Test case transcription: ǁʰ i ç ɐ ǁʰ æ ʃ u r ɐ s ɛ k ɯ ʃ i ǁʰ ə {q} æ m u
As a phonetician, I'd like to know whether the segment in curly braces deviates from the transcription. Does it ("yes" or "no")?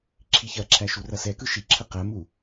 no